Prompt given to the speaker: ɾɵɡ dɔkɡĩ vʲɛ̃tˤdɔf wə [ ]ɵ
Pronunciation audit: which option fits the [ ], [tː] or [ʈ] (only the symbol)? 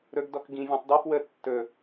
tː